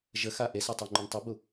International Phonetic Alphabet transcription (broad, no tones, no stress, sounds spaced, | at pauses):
ʒ ə x a ʔ e s ɛ tˤ o ŋ͡ǃ u n tˤ ə b u